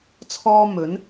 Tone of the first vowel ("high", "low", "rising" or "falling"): high